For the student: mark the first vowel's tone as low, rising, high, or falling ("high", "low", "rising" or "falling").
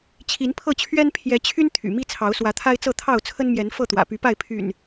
rising